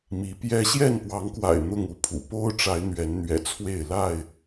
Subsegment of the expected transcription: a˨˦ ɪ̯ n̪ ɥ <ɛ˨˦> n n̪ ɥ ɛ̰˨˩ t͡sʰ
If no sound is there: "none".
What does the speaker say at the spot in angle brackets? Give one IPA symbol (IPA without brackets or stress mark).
ɛ˨˦